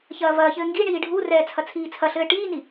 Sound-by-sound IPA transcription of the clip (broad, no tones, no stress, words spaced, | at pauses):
çɐːvɐːçɘː ŋɡiɳiː ɖʱurɛː t͡sʰɐt͡sʰiːt͡sʰɐɬɘː ʈiːni